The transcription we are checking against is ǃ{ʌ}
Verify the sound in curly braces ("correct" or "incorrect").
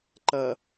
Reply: correct